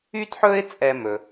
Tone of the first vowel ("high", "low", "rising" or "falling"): high